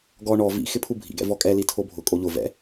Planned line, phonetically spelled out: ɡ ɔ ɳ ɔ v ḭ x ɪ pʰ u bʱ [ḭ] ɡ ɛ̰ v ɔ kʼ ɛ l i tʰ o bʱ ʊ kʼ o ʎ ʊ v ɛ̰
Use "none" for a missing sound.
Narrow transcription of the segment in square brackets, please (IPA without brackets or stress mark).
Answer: ḭ